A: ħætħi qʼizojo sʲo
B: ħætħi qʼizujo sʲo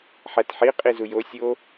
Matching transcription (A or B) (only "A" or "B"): B